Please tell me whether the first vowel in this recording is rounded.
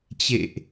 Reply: no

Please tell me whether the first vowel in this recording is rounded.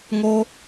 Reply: yes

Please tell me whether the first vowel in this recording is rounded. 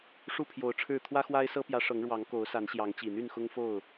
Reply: yes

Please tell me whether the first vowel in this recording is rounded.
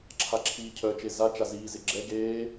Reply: no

